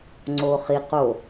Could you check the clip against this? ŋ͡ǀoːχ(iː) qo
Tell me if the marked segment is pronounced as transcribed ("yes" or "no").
no